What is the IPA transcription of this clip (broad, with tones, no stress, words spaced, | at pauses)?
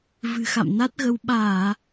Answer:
vɨ̤˨˩xa̰˧˨mna˦˥t̚ɣə˧w ɓaː˧˩˨